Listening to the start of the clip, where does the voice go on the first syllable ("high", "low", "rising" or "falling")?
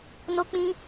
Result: high